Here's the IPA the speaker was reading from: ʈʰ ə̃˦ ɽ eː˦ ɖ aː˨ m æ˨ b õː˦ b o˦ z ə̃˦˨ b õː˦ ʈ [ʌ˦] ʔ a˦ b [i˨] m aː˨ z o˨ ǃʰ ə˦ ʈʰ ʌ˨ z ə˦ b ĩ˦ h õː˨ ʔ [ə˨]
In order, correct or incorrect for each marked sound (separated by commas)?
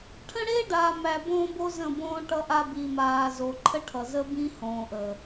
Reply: correct, correct, correct